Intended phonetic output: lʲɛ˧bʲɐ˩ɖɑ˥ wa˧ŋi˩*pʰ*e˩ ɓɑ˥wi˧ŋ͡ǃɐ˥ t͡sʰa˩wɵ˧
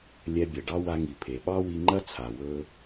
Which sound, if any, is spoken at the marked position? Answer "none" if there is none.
pʰ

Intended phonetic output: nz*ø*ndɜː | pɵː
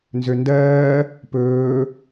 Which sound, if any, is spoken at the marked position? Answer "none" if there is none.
ø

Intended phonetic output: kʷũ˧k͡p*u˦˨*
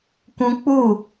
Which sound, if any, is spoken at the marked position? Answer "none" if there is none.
u˦˨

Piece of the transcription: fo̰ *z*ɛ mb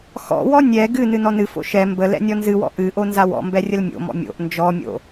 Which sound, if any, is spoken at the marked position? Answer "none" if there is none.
ʃ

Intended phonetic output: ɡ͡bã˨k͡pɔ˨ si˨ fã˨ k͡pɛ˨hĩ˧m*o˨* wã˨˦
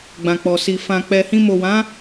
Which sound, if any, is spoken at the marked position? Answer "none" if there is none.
o˨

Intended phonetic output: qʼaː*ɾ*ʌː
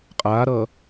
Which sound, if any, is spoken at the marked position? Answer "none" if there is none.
ɾ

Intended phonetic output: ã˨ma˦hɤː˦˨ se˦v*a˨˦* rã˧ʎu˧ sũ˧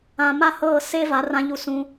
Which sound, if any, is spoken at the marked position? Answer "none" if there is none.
a˨˦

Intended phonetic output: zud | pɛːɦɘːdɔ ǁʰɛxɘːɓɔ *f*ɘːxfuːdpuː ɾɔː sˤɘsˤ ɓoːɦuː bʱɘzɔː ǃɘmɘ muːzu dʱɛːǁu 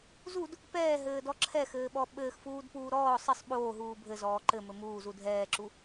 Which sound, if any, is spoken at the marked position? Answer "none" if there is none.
ɓ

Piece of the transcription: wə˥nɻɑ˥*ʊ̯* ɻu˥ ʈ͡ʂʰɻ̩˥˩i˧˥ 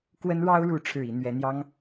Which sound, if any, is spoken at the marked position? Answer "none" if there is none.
ʊ̯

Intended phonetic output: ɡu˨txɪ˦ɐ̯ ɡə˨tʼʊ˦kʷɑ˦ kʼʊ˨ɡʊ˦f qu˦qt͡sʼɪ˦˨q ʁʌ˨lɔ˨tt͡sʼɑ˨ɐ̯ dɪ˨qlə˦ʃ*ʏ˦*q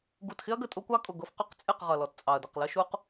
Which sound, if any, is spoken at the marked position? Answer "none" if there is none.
u˦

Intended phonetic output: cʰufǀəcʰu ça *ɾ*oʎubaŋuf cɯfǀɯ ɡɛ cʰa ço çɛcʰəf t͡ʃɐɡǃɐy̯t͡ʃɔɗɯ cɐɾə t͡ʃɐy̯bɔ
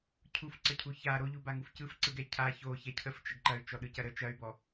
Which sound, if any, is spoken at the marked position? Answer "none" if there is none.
ɾ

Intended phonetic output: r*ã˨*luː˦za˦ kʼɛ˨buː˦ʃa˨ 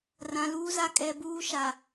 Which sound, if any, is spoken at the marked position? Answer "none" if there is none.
ã˨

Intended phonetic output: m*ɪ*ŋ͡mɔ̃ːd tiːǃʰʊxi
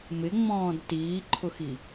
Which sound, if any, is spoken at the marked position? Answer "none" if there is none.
ɪ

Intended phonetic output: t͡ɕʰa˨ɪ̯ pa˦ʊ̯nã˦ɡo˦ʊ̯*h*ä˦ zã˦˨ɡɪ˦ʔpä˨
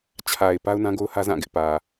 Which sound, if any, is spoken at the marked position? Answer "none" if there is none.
h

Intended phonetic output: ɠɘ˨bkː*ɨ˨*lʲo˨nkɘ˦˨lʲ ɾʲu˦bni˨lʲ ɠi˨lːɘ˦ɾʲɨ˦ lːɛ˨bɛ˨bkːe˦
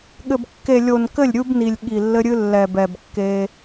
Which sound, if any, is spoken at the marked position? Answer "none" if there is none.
e˨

